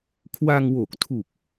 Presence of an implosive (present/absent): absent